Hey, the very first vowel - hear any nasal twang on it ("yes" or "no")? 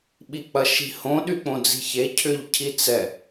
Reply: no